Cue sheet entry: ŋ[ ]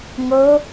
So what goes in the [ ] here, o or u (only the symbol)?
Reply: o